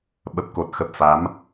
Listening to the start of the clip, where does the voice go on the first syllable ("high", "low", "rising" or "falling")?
low